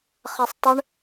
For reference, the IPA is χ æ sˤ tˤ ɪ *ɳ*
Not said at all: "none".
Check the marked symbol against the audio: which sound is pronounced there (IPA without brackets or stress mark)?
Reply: ɳ